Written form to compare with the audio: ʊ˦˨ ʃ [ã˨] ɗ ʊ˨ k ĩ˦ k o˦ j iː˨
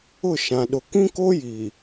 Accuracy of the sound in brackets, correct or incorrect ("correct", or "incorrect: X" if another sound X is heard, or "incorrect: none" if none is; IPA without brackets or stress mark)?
correct